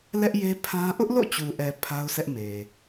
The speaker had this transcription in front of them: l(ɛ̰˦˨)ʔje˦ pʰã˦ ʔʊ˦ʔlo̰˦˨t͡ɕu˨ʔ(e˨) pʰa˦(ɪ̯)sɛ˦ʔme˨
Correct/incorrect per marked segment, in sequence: incorrect, incorrect, incorrect

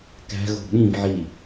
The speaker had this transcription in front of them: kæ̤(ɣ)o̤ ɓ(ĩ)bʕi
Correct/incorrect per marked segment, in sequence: correct, correct

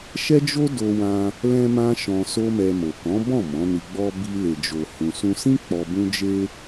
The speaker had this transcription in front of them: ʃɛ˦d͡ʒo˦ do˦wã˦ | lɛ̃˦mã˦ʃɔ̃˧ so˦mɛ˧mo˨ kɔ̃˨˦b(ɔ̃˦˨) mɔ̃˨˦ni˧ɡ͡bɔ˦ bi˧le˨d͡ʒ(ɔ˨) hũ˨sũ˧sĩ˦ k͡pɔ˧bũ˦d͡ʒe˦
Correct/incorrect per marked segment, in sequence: correct, incorrect

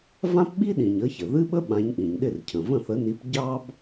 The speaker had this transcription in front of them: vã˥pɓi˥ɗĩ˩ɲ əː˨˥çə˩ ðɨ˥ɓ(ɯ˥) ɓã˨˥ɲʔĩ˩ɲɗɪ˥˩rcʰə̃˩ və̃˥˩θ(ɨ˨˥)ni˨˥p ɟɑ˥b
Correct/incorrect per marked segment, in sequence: incorrect, incorrect

